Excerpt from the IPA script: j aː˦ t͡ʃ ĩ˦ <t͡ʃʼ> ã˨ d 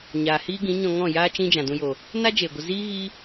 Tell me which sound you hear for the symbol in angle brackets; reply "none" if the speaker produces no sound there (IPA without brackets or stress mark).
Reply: d͡ʒ